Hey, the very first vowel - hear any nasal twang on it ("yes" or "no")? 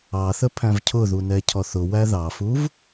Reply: no